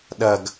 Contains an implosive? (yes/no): yes